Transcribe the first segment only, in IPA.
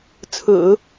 t͡sʰ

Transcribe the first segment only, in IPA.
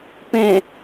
p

